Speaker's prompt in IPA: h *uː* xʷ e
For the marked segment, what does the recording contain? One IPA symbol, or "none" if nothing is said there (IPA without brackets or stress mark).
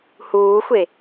uː